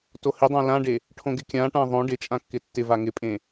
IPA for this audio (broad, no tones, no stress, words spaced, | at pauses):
tohɪdˤã lãɖe | ʈʰõɡɪkʲãʈã ðˤõ ɖɪ t͡ʃʼãkːɪtːɪva ŋɪpʼẽ